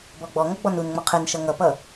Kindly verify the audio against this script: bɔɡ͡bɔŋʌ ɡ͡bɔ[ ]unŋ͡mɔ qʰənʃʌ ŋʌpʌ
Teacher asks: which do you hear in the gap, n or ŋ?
n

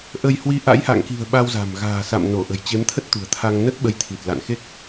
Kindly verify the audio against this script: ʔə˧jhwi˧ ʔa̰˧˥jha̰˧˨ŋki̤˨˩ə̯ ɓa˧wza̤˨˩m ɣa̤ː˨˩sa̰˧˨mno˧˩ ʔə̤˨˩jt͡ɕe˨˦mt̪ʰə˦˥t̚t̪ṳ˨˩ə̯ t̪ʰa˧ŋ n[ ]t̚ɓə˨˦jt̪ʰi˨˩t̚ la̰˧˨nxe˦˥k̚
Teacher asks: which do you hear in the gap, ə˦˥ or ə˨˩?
ə˦˥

